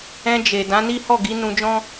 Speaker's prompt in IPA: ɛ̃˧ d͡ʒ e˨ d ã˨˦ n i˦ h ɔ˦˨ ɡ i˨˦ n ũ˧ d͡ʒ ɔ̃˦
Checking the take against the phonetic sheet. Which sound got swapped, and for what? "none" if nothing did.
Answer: none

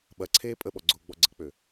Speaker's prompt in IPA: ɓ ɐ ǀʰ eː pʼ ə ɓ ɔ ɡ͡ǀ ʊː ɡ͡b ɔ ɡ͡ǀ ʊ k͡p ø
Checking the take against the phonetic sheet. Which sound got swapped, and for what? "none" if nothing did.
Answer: ʊ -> ə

